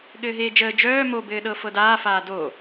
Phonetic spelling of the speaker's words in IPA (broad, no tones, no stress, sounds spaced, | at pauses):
ɠ ɘː ɦ eː d͡ʒ əː d͡ʒ œː m o b ɘː ɗ ɤ f ɤ d aː f aː d o